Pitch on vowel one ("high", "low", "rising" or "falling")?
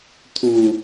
low